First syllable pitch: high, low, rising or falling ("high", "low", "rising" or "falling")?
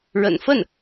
low